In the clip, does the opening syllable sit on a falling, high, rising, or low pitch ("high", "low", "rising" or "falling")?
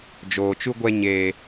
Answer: low